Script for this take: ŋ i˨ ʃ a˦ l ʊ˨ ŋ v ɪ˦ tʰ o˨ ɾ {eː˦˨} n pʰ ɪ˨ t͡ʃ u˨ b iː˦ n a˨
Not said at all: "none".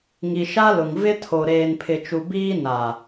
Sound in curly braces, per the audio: eː˨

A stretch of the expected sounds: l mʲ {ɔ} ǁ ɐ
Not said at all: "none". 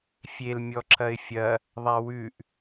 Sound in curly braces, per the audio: ɔ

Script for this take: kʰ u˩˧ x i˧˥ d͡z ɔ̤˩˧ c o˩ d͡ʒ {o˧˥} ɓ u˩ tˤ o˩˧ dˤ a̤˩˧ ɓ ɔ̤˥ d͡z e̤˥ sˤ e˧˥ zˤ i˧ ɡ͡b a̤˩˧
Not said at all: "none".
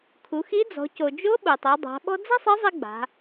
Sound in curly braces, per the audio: o˧˥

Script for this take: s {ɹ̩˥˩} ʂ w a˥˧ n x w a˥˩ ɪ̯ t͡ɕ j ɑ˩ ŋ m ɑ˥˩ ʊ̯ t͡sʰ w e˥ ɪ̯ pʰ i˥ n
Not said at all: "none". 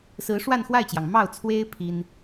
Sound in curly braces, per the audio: ɹ̩˧˥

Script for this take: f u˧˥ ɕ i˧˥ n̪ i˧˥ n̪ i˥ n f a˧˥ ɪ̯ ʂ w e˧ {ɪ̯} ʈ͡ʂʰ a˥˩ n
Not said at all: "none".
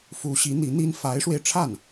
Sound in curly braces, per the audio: ɪ̯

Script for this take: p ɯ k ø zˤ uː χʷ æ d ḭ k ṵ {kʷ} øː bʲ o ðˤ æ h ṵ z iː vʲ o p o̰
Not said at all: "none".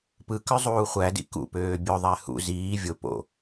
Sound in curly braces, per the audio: p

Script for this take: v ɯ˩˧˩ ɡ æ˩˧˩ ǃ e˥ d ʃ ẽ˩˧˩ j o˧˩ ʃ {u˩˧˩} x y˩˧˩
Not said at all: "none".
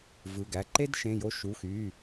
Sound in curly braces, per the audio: u˩˧˩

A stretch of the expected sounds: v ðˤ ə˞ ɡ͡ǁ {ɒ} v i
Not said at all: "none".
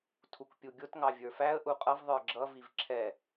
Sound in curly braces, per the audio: ʌ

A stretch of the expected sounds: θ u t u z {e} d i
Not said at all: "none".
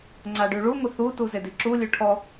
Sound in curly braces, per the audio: e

